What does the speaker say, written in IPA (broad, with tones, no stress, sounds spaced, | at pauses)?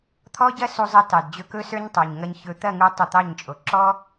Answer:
t̪ʰ ɔ˦ ɟ ɐ˦ s u˧ zˤ ɐ˧ t ɑ˨ d d͡ʑ ɵ˧ k ɵ˦ s ə˞˦ ɲ tˤ o˨ ɲ ŋ ɐ˧ ɲ ç ɵ˧ t̪ ɐ˦˨ ŋ u˧ tˤ u˧ t̪ ɑ˦˨ ɲ t͡ʃʼ o˨ ǁ ɔ˦